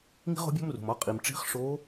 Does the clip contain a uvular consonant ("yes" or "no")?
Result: yes